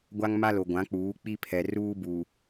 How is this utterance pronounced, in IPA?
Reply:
ɡʷ a˦ ŋ m a˦ l o˨ ɡʷ ã˨˦ k͡p uː˨˦ k͡p i˦ pʰ ɛ˨ r uː˦ b u˨

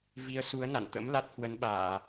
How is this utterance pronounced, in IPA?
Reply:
v i˨˦ ə̯ s u˨˦ ə̯ n a̰˧˨ n t̪ ə̰˧˥ m l a˦˥ t̚ h w ə˨˦ n ɓ aː˧˩˨

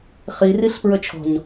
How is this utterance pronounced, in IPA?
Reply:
χ i r i ɬ p ɹ ə t͡ʃʰ ɔ̤ ɲ

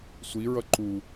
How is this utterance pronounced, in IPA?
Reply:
sʷ i ɹ ʌ ǃ u

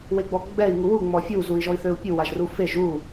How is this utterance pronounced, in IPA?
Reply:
w e ɡ͡b ɔ ɡ͡b ɛ i̯ ŋ u w u ŋ͡m ɔ fʲ u z u i̯ ʒ ɔ i̯ θ ø u̯ pʲ u w a ʒ r u f e ʒ u

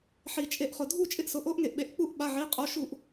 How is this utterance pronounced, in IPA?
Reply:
ħ i˩ t͡ʃʼ e˧˩˧ ʔ χ ʊ˩ dʱ u˦˨ t͡ʃʼ ɪ˦˨ ʔ s ʊ˩˧˩ ʔ o˦˥ ʔ ŋ e˩ ʔ ɓ e˩˧˩ ʔ k͡p u˦˨ ʔ ɓ a˩˧˩ ʕ i˩˧˩ qʼ o˩˧˩ ʃ u˧˩˧ ʔ

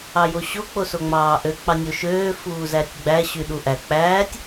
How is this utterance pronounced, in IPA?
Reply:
ɑ j o ɕ o k͡p o s o ŋ͡m ɑː ʔ ø k͡p ɑ nʲ o ʃ øː f uː z æ tʲ ɡ͡b æ ɕ y ɗ u ʔ æ k͡p æː tʲ

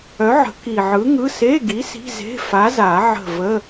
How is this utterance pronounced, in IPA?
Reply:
œ˨˥ ʕ ə̤˨˩˦ k i˨˩ ʕ ɯ˨˥ ŋ ɯ˧˥˧ s e˧˥˧ ɡ i˨˥ s i̤˧˥˧ z e̤˧˥˧ f a˨˥ z a˨˩˦ ʕ ə̤˦˨ v ə˧˥˧

